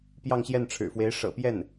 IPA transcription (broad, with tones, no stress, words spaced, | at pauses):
pjɑ˥˧ŋɕjɛ˥˩nʈ͡ʂʰɻ̩˨˩fwe˧˥ɪ̯ ʂɤ̰˨˩pjɛ˥˩n